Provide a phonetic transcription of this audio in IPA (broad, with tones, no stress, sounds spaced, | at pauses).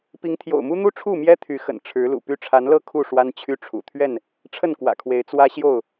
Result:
p i˨˦ ŋ t̪ʰ j o̰˨˩ ʊ̯ m u˦ n̪ u˦ ʈ͡ʂʰ u˥˨ m j ɛ˦ t̪ʰ y˨˦ x ə̰˨˩ n ʈ͡ʂʰ ɻ̩˨˦ l ṵ˨˩ p y˦ ʈ͡ʂʰ a˨˦ n l ɤ˥˨ kʰ u˥˨ ʂ w a˦ n t͡ɕʰ y˦ ʈ͡ʂʰ ṵ˨˩ t̪ʰ ɥ ɛ˥˨ n | ʈ͡ʂʰ ə˥˨ n k w ä̰˨˩ kʰ w e˨˦ ɪ̯ t͡s w ä˦ ɕ j o˥˨ ʊ̯